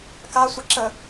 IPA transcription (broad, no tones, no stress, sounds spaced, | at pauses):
k a sʷ ɐ ǁ ə